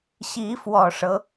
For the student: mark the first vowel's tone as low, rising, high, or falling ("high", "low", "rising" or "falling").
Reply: rising